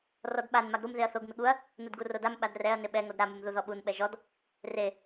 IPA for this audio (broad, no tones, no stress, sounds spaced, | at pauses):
r ɔ d ɓ a n m a ɡ ɾ u m ð e ɐ̯ θ o ɡ m ɪ ɠ u ɐ̯ | n u d ɡ u r o d a m ɓ a d r ɛ ɐ̯ n ɪ ɓ ɛ ŋ o d ɾ a m u m ð u ð ɔ ɓ u n ɓ ɛ ʒ ɔ d | r e